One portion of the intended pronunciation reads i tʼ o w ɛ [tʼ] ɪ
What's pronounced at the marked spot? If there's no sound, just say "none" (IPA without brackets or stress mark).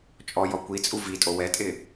tʼ